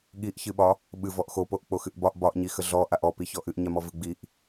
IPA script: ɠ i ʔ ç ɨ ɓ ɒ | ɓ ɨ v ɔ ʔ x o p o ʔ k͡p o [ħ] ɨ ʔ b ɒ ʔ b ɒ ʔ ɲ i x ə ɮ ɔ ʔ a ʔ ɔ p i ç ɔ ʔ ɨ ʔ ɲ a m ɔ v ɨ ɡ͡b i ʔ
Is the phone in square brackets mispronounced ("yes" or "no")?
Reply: yes